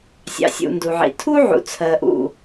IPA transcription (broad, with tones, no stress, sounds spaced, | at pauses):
sʲ ɑ̰˨ sʲ ṵ˨ n d u˨ ʕ ḭ˨ tʰ u˦ ʕ ṵ˨ t͡sʰ ɜ˧ ʔ ṵ˦˨